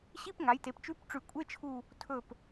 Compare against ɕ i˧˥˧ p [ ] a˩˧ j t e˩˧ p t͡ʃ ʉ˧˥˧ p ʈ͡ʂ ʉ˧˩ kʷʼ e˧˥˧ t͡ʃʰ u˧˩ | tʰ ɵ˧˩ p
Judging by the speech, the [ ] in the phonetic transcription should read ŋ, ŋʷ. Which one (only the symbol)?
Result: ŋ